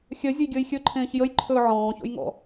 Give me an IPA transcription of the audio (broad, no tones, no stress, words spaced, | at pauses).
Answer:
xʲœzʲəjɡʲəːj xʲɵǃʰẽːç jəjǃʰɵː ʕɔ̃ːço̰jŋɔ̰